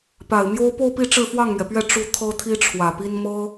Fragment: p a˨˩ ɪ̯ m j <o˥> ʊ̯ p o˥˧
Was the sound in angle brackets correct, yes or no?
yes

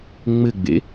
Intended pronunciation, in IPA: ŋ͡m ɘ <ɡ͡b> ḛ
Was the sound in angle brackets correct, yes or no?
yes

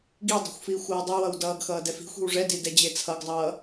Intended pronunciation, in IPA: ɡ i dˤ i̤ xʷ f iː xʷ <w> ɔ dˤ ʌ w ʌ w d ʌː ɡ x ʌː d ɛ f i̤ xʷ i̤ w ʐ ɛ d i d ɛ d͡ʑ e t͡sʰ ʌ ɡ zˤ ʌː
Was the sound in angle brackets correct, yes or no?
yes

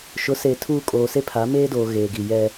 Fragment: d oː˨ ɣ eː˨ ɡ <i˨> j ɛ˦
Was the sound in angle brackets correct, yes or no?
yes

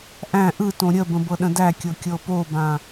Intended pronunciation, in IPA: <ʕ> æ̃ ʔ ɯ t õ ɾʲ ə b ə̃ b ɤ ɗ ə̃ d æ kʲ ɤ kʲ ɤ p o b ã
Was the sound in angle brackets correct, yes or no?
no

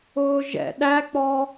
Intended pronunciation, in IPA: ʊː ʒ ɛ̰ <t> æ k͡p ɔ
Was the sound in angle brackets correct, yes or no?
no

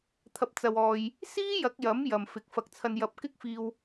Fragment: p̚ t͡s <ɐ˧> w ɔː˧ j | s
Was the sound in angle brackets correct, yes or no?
yes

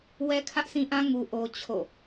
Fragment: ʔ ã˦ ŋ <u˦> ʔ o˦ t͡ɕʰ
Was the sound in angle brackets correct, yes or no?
yes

